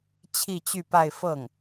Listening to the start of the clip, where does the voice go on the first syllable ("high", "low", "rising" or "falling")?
falling